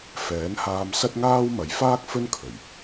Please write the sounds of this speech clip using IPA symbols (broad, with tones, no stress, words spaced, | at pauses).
fɛː˨˥nhaː˧msɐ˥t̚ŋaː˥w mɐ˨˧j faː˥k̚ fɵ˥nkʰɵ˨˩ɥ